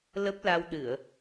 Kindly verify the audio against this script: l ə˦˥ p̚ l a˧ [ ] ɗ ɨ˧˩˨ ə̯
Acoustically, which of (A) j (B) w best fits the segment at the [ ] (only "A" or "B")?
B